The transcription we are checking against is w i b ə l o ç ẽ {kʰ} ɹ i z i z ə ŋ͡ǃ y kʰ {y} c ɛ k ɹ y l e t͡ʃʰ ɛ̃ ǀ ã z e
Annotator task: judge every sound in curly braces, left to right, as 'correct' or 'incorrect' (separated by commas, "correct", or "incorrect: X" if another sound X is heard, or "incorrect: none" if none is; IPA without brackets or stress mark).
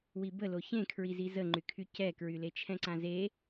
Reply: correct, correct